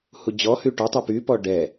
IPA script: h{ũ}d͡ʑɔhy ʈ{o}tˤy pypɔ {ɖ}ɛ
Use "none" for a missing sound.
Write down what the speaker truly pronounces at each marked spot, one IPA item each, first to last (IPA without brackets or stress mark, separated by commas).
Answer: u, ɔ, ɖ